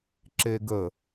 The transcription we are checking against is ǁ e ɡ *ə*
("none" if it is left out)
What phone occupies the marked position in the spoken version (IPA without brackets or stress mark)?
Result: ə